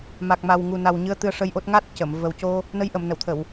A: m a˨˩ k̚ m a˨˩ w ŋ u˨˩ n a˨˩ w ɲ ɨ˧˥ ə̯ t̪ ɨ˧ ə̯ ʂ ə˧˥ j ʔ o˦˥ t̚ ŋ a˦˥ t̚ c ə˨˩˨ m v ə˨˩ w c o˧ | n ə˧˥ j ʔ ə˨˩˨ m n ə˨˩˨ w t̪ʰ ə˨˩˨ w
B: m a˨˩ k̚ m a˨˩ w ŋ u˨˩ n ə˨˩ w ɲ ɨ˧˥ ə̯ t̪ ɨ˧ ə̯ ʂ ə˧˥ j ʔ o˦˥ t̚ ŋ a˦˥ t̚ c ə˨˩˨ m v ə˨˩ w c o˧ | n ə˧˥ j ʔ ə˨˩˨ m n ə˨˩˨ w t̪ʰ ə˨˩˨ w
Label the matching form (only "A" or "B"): A